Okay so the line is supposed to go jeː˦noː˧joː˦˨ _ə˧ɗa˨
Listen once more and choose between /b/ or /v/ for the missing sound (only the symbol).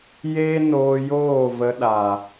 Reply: v